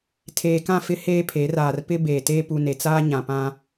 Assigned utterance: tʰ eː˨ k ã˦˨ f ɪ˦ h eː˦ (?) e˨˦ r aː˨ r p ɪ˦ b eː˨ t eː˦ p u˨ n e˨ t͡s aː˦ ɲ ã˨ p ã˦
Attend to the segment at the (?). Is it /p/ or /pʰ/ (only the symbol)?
pʰ